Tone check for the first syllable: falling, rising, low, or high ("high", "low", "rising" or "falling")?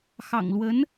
low